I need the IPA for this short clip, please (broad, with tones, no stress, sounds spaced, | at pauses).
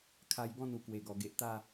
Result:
kʰ a˧ j ɡ ɔ̃˥˧ n u˨˩ k w e˨˩ ɡ ɔ˨˩ ɡ e˨ ʔ t̪ a˥˧